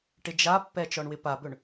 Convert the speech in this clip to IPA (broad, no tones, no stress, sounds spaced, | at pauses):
ʈ ɪ d͡ʒ a pː ɛ t͡ʃ ɔ ɳ w ɪ p a b ɵ ɳ